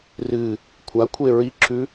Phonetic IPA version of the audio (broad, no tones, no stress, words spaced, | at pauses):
rɨ | kʷʰakʷʰe ɹiǁʰʉ